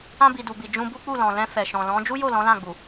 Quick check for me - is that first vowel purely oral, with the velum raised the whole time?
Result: no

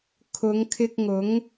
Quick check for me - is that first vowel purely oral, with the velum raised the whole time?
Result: yes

